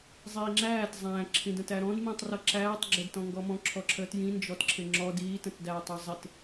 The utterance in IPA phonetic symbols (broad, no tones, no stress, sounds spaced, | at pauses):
zˤ iː ŋ͡ǁ æː t zˤ æ̃ ǁʰ ĩ d ə̃ t æ ɾ ɔ̃ d m ĩ tˤ r ʌ ǁ æː tˤ ɡ͡ǁ ɪ d t ɔ̃ ŋ ɡ ɔ m ɔ̃ ǁʰ ɔ ǁʰ əː t j ĩ n d͡ʒ ɔ t ǁʰ ɪ ŋ͡ǁ ɔ d iː t ə̃ t d æː tˤ ʌ zˤ ɪ t